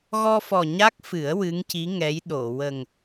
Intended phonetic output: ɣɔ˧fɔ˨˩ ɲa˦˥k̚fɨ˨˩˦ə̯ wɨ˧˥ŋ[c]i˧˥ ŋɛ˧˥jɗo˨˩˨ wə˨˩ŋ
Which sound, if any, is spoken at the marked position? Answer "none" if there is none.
c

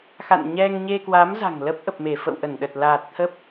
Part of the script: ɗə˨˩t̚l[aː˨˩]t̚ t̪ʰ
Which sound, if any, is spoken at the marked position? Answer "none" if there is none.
aː˨˩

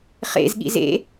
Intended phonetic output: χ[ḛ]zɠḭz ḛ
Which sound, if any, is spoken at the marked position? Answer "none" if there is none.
ḛ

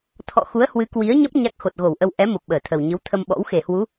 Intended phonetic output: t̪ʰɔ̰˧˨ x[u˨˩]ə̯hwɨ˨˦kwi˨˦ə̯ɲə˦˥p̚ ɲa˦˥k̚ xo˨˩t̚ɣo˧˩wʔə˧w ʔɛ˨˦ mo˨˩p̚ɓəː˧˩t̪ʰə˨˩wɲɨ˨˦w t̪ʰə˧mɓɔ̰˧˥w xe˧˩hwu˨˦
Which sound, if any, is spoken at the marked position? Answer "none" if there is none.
u˨˦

